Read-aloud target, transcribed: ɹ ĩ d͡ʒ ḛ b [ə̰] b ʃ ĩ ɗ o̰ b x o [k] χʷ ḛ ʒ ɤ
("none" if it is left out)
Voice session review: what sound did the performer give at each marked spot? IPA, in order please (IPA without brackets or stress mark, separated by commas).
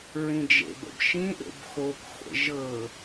ə̰, k